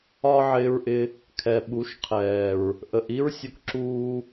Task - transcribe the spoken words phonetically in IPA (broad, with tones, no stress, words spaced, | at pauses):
ɒ˦ ʕɪː˧ɹʔɪ˧ | kʰɛ˨ ɓu˨˦ʃ qʰɛː˨ɹ | ʔə˨ʔ i˦ɹsʲʊ˧kǁuː˧